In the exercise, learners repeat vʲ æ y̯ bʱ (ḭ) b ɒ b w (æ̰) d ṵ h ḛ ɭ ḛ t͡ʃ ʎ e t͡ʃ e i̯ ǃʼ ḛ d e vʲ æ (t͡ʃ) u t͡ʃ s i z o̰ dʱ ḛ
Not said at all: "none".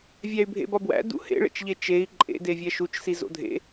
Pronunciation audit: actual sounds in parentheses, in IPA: ḛ, æ̰, ʃ

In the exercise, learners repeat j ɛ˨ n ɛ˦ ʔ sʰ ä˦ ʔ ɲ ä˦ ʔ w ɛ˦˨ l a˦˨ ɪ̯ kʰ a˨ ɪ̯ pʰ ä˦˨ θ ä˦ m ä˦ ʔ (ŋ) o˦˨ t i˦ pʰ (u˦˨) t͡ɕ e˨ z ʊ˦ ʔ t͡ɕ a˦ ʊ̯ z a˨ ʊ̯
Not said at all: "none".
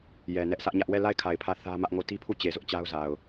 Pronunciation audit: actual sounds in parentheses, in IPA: ŋ, u˦˨

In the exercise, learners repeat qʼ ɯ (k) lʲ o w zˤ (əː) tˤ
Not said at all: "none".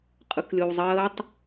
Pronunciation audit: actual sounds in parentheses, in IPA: k, əː

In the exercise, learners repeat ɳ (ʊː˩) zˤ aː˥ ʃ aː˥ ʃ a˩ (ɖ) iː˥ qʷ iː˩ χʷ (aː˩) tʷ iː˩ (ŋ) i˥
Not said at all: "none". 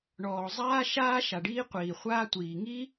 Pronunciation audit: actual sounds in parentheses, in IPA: ɔː˩, ɖ, aː˥, ŋ

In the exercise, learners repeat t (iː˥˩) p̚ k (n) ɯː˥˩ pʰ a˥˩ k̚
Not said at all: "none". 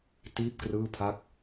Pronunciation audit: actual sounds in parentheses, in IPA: iː˥˩, r

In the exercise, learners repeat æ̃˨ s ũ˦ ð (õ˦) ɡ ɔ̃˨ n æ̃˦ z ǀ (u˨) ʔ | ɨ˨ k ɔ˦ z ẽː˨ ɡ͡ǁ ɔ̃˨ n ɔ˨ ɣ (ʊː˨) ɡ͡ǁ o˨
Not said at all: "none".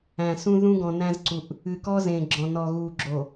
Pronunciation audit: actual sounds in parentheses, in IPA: ũ˦, u˨, uː˨

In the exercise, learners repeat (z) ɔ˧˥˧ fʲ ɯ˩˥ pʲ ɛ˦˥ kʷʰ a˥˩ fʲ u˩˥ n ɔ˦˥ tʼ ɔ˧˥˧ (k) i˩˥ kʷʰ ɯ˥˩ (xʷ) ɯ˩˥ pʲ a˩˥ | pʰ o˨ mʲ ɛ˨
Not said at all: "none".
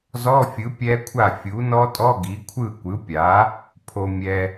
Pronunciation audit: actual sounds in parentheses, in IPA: z, ɡ, kʷ

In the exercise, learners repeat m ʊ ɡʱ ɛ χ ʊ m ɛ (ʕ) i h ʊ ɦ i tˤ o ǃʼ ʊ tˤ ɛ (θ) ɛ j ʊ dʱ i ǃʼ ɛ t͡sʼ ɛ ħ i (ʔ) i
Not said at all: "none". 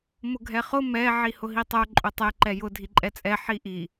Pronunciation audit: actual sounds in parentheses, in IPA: ʕ, ǃ, ʔ

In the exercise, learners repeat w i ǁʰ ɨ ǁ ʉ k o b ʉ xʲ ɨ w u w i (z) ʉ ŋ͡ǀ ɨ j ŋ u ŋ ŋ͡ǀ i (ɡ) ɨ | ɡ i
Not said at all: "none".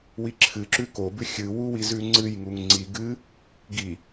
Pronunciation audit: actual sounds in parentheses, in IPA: z, ɡ

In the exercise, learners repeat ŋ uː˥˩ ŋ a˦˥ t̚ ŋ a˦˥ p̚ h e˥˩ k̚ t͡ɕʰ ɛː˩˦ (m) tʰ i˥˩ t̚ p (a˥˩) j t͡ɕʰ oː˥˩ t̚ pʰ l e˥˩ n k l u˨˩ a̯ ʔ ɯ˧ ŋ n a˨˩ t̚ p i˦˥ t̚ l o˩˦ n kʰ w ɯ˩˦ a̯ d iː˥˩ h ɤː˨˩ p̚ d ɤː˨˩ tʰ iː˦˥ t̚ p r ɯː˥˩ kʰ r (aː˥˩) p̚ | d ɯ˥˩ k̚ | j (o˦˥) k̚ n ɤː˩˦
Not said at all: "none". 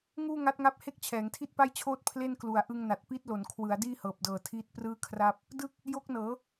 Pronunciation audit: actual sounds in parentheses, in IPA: ŋ, a˥˩, aː˥˩, o˦˥

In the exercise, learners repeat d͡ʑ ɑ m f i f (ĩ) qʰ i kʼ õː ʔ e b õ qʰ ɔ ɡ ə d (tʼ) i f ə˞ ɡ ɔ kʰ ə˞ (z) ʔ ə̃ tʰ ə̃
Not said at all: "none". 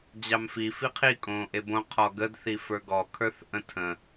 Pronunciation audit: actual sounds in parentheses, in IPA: i, θ, θ

